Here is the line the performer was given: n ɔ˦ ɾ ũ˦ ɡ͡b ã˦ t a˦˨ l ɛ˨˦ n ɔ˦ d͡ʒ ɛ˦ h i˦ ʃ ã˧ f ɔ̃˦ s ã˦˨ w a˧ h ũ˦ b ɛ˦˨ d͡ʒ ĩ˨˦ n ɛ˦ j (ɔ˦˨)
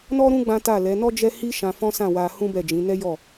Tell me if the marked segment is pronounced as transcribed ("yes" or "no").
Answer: yes